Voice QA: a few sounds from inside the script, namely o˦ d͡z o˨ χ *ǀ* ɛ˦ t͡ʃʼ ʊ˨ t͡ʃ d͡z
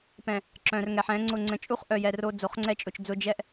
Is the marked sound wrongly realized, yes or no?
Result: yes